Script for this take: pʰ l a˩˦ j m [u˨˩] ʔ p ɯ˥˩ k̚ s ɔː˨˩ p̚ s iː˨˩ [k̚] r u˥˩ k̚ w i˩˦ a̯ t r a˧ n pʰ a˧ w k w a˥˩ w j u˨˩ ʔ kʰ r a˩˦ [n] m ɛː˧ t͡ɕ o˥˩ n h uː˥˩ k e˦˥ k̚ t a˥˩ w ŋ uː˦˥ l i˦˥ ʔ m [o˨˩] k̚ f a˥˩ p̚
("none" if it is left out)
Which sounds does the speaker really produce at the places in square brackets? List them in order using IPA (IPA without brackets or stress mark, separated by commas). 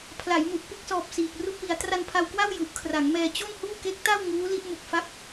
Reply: u˨˩, k̚, ŋ, u˨˩